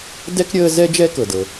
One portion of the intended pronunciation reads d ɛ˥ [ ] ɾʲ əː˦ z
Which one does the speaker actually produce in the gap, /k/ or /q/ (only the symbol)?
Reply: k